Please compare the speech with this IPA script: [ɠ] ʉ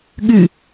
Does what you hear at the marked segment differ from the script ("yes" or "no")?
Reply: no